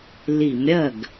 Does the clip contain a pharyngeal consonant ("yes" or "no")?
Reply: no